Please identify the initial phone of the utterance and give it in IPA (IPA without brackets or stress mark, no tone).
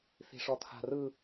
θ